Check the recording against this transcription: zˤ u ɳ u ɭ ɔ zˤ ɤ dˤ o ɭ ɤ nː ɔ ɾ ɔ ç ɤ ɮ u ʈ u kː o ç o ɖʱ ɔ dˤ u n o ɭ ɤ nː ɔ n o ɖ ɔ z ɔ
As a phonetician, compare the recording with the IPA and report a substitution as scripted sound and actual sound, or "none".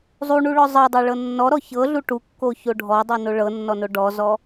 none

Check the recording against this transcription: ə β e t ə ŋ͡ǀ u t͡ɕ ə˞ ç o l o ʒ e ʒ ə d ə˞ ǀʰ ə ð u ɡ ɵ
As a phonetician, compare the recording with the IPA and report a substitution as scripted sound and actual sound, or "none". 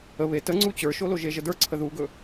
ç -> ʃ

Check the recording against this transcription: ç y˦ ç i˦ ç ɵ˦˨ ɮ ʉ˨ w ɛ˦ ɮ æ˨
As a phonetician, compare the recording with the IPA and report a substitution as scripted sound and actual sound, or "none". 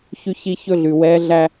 æ˨ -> æ˦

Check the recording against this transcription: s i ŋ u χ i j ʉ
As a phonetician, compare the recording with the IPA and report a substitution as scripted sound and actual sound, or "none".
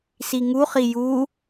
ʉ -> u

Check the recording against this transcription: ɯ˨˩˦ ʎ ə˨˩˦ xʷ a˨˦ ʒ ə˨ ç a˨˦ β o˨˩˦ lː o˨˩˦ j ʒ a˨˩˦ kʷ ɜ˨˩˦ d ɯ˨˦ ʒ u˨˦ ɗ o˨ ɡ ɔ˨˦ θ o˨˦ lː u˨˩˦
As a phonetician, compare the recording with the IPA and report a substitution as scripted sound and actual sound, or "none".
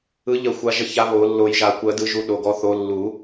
none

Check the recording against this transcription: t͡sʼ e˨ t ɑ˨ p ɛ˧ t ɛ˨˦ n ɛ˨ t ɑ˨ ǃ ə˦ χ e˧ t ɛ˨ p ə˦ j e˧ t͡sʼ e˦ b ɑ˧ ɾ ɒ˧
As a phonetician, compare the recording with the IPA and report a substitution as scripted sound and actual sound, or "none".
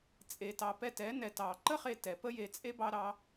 ɒ˧ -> ɑ˧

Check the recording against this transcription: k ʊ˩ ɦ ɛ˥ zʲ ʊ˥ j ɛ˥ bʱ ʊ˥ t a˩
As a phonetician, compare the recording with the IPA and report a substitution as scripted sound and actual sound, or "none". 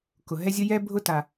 none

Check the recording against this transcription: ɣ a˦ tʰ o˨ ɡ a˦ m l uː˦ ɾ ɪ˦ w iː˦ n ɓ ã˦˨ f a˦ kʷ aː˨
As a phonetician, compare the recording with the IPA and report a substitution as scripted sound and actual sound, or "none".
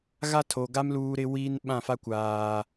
none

